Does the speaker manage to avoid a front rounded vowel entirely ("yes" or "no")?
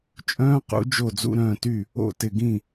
no